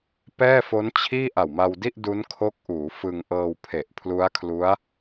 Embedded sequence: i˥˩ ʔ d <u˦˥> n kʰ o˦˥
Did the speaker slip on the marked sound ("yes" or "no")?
no